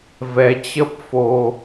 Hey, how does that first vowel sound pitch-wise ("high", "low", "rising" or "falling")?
rising